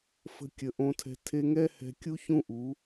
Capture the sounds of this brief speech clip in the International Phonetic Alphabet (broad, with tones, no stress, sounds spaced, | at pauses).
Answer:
f ə̤˧ kʲ ə˨ ʔ õ˧ tʰ ɛ̤˧ tʰ e˧ ŋ ɛ˦ h ɛ̤˧ kʲ u˦ ç ũ˦ ʔ u˨˦